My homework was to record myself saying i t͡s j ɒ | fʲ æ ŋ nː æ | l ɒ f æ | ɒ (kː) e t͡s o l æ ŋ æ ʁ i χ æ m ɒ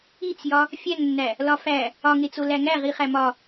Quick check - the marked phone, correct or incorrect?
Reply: incorrect: ŋ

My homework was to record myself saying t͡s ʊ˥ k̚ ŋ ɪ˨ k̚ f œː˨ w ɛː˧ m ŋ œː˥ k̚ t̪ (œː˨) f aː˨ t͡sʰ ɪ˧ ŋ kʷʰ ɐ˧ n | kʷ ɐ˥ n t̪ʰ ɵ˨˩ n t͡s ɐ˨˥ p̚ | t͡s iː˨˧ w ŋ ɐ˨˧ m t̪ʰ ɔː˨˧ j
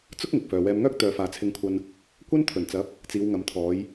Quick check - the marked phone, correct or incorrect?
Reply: incorrect: œː˨˧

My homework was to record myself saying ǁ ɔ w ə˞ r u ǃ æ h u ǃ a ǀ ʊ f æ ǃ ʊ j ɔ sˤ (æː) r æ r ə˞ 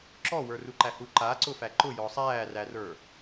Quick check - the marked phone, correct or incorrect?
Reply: correct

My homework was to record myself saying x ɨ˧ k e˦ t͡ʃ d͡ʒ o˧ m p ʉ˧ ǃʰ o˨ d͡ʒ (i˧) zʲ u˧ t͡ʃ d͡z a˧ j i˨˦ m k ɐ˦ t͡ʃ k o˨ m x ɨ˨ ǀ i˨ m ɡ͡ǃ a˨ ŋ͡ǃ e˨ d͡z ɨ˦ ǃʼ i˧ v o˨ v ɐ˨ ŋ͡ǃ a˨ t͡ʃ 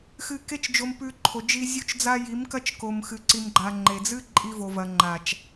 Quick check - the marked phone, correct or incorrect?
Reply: correct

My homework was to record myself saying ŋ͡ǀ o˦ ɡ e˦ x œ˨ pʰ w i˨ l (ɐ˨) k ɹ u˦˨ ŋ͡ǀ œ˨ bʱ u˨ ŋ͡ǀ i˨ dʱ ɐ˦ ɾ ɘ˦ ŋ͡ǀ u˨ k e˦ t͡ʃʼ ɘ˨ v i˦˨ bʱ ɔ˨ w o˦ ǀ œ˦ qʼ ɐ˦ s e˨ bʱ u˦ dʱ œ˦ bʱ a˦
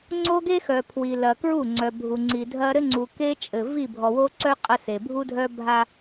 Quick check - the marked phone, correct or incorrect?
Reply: correct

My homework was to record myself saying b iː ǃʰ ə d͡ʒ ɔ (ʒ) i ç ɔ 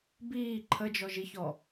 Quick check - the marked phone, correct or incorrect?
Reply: correct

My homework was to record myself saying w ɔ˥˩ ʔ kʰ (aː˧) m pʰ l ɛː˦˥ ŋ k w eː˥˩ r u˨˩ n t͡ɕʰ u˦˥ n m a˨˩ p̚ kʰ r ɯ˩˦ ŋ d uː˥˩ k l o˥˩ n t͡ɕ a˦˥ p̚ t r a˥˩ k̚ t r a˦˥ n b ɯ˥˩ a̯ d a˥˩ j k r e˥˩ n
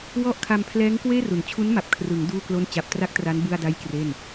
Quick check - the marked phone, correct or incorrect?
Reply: incorrect: a˧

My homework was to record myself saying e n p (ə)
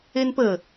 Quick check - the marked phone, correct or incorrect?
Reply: correct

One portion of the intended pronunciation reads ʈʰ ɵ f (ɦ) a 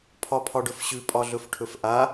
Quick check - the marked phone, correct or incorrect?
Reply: incorrect: ʔ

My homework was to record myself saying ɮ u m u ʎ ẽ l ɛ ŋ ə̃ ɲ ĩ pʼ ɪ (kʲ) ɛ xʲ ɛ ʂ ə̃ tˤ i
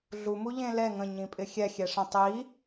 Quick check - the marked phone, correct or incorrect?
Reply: incorrect: xʲ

